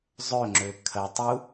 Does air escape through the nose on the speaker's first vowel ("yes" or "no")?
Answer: no